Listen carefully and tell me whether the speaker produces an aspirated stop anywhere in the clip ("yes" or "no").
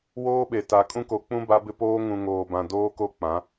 no